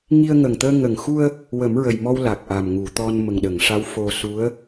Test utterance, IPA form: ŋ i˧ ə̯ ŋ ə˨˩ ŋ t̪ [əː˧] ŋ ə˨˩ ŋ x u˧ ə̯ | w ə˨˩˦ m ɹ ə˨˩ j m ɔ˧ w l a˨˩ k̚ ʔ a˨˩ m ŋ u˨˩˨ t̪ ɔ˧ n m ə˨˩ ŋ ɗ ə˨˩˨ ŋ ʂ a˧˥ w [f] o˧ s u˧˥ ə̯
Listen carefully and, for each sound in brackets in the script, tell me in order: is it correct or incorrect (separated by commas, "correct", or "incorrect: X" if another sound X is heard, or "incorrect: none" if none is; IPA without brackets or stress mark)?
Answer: correct, correct